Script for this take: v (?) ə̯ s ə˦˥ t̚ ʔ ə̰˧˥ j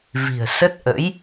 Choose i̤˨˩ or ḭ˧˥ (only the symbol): i̤˨˩